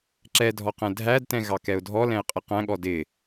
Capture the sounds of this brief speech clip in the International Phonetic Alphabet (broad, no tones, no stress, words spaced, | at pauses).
ǁɛdʱɔqɛ̃ dʱædtɛ̃ ɣɑkɛʊ̯dʱɔlɛ̃ɪ̯ qʼɪqæ̃ɠɔ dɪ